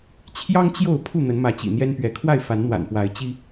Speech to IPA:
t͡ɕʰ j ɑ˦ ŋ t͡ɕ j o˥˨ ʊ̯ pʰ u˥˨ n̪ ə˨˦ n m ä˨˦ t͡ɕ ḭ˨˩ n̪ j ɛ˦ n p ɥ ɛ˨˦ kʰ w a˥˨ ɪ̯ f a˨˦ n n̪ w a̰˨˩ n p w a˨˦ ɪ̯ t͡ɕ i˦

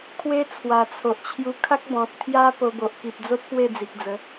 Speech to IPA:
kʰ w e˦ t͡sʰ w a˨˩ t͡sʰ o˨ ʔ t͡ɕʰ j u˧ kʰ a˦ k̚ b ɔ̃˨ t̚ t̪ʰ j a˦ p o˧ b o˨ ʔ k i˨ p̚ d͡z o˦ t̚ p w e˥˧ d͡z i˨ k̚ d͡z ə˨˦

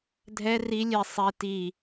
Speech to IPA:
dʱ ɛ r i lʲ e sˤ e t i

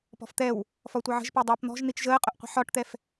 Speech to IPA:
p ɔ̤ f t̪ ɛ w | f ɒ tʷ ʌ ʕ ə̤ ʒ p ɜ dˤ ʌː p n̪ ɔ̤ ʒ n̪ i t͡ʃ ʒ əː qʼ ʊ ʔ qʷ ə̤ ħ ɒ ʈ t̪ ɛ f

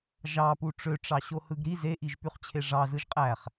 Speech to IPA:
ʒ ɑ p u ʈ͡ʂ ø ʈ͡ʂ ɑ ɕ o h ɯ ɡ ɾ i z e ʔ i ʒ p y χ t͡ɕʰ e ʐ ɑ z ɯ ʒ qʼ æ χ

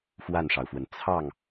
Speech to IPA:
f w a˥˩ n ʂ ɑ˩ ʊ̯ f w ə˩ n t͡sʰ ɑ˥˩ ŋ

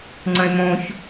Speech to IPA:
ŋ͡ǀ ə̃ e̯ m õ ç

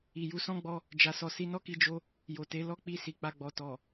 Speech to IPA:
i˨ j u˨˦ s ɔ̃˦ ɡ͡b ɔ˧ | d͡ʒ a˨ s ɔ˨ s i˨˦ n ɔ˦ k i˧ d͡ʒ o˧ | j o˨ t e˨˦ l ɔ˦˨ k͡p i˧ s i˨ k͡p a˧ ɡ͡b ɔ˨ t ɔ˨

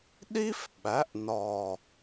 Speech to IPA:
ɗ i˥ f ɓ æ˩˥ ʔ n ɒ˨˩

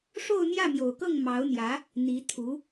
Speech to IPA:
ʂ o˥˧ ʊ̯ n̪ j ä˥˩ m j o˨˩ ʊ̯ k ɤ˥˩ ŋ m ɑ˧˥ ʊ̯ n̪ j ä˧˥ | n̪ i˧˥ t̪ʰ u˧˥

